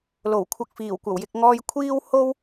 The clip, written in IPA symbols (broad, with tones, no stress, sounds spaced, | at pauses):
l o˨˩ w kʷʰ ɐ˨˥ k̚ f iː˨˩ w kʷ ɐ˨˩ w j ɪ˨ k̚ ŋ ɔː˧ j kʷʰ iː˥ w h o˥ w